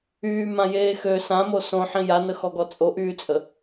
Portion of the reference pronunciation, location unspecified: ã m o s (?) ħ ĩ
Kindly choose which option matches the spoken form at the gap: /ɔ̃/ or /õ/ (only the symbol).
õ